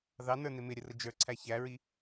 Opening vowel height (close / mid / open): open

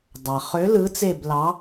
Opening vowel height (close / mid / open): open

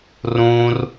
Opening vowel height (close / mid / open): close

